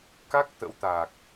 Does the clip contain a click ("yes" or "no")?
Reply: no